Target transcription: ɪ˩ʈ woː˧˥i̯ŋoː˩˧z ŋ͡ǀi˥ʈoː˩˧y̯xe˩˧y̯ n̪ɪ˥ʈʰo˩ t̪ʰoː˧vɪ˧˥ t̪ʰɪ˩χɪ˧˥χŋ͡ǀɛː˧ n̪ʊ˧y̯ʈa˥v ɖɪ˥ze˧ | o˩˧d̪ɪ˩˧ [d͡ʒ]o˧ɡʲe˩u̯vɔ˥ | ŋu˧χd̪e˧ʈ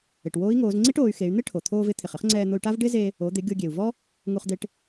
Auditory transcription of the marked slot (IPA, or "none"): ɡʲ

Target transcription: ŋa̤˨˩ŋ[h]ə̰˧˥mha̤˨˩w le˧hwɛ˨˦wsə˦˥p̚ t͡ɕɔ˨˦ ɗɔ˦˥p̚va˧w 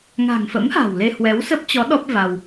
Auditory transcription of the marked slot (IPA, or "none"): f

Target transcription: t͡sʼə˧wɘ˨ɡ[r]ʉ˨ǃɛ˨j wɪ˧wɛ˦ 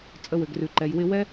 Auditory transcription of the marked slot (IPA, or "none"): r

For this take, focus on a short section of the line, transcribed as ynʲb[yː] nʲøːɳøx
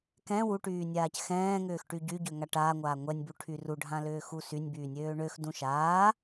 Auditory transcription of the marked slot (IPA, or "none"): yː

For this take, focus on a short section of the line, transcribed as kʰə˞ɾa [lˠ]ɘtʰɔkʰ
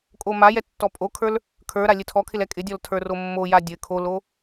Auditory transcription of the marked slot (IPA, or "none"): lʲ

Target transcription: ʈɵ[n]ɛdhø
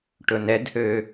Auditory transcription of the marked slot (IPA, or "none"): n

